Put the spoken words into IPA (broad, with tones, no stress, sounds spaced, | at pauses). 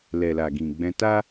l ɛ˨ l a˨ ɡ ĩ˨ ɡ͡b ɛ̃˧ t a˦